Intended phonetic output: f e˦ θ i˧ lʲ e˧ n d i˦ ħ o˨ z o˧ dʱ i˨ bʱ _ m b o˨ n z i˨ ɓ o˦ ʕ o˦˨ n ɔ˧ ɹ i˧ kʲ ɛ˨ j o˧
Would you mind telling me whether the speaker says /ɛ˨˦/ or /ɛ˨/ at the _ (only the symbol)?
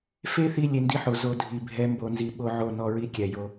ɛ˨˦